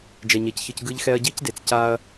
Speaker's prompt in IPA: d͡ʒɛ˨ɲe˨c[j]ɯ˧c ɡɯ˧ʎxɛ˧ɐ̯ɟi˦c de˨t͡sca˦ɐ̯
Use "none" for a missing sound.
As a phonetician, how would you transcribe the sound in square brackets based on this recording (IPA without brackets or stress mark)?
ç